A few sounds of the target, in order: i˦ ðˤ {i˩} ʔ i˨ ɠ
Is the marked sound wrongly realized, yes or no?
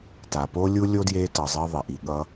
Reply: no